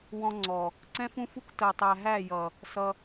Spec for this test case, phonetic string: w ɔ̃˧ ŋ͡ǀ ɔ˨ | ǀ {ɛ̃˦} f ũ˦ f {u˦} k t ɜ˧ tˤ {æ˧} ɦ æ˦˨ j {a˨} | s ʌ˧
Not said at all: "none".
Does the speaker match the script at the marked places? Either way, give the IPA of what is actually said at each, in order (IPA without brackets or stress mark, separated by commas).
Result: ɛ̃˦, u˦, æ˧, ʌ˨